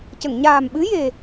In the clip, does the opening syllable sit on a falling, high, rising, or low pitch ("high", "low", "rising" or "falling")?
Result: low